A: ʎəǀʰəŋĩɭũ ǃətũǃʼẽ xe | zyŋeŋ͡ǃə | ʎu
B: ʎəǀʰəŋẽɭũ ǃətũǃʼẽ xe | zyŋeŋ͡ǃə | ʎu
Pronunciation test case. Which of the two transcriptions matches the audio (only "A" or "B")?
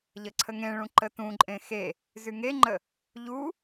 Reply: B